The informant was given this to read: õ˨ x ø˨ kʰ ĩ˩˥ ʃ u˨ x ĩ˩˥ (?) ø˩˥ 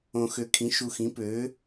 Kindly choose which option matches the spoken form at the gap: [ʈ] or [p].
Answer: p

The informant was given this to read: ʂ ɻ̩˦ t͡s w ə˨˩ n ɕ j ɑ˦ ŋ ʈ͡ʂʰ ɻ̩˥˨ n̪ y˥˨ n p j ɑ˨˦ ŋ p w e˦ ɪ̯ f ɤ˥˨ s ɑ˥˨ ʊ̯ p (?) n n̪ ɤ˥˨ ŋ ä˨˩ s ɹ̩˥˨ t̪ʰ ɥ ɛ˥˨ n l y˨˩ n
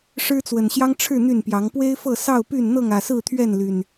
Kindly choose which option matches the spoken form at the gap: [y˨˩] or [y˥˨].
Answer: y˥˨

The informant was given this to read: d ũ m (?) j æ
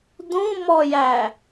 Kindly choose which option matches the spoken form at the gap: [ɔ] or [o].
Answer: ɔ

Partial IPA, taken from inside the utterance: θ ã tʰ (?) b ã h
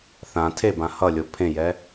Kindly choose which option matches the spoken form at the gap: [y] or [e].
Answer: e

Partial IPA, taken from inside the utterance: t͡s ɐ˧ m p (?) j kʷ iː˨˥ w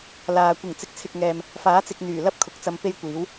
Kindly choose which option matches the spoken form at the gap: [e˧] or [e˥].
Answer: e˥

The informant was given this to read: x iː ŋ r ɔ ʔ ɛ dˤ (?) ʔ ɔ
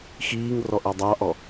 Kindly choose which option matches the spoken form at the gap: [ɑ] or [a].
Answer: ɑ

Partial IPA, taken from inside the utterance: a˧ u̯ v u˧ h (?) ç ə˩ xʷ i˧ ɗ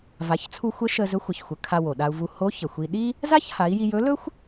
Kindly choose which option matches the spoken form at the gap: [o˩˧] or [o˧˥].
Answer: o˧˥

